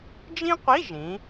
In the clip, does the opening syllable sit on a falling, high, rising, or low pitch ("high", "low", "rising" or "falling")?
high